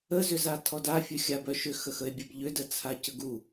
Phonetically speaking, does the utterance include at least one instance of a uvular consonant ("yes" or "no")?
no